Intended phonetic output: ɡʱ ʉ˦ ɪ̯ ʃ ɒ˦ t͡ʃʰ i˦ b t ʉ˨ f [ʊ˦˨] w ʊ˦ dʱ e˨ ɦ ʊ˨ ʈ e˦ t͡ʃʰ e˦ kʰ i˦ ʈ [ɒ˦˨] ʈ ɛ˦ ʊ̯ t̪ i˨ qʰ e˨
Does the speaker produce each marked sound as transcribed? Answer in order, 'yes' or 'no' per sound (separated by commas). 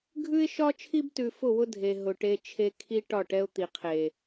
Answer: yes, yes